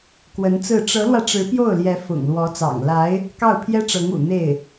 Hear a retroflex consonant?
yes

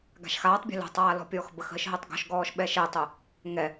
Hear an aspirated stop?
no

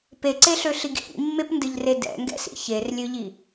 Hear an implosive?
no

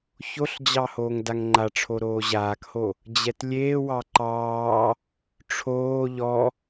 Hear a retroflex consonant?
yes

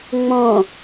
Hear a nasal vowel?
yes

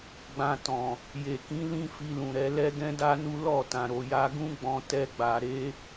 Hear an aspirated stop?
no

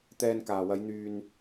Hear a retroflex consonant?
no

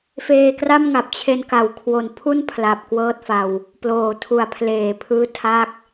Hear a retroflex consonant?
no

